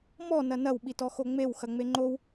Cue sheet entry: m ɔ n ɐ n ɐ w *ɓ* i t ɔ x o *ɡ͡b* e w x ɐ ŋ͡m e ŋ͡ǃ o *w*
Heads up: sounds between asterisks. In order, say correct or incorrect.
correct, incorrect: ŋ͡m, correct

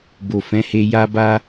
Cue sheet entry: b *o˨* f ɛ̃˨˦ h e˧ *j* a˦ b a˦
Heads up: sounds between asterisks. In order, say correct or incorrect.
correct, correct

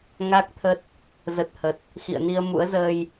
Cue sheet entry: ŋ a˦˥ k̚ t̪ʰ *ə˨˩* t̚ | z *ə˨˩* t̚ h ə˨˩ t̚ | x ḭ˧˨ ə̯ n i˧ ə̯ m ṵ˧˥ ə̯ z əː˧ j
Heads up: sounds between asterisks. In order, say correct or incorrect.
incorrect: ə˦˥, correct

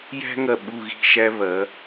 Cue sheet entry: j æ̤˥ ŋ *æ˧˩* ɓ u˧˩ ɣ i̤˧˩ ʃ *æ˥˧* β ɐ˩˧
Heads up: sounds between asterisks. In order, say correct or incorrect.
incorrect: ɐ˧˩, incorrect: æ˧

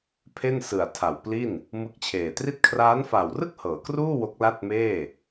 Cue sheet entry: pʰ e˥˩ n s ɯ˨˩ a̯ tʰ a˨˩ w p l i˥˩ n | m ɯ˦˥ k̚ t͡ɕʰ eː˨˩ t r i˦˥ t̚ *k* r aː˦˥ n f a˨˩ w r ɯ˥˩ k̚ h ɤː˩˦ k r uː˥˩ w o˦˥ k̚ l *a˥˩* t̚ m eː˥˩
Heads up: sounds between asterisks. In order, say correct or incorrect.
incorrect: kʰ, correct

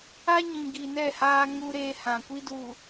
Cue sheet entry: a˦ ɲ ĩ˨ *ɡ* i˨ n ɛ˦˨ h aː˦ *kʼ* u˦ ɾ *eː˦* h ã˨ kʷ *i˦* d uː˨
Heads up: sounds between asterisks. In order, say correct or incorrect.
correct, incorrect: ŋ, correct, correct

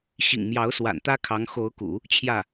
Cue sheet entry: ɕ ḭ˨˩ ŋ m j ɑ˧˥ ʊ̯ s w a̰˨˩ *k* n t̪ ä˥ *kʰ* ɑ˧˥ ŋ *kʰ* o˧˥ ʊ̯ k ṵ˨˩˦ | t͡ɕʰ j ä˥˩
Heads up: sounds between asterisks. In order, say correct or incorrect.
incorrect: none, correct, incorrect: x

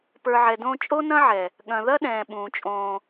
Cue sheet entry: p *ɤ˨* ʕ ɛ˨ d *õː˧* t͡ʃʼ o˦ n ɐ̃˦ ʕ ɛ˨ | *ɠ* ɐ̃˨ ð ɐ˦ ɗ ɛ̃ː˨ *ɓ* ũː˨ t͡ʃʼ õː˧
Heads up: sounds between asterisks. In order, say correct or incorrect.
incorrect: ə˞˨, correct, correct, correct

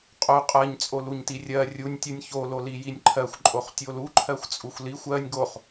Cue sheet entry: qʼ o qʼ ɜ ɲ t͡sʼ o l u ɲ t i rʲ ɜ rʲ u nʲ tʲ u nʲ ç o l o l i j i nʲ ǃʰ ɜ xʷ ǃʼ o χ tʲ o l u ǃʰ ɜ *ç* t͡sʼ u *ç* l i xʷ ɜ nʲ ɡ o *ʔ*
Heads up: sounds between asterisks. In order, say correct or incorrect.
incorrect: xʷ, incorrect: xʷ, incorrect: χ

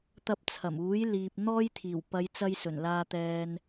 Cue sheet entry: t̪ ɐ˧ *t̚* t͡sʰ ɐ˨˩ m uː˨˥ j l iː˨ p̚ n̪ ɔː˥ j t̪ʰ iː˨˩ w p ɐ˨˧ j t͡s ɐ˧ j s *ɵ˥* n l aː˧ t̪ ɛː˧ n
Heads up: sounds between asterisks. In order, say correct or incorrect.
incorrect: p̚, incorrect: ɵ˨˩

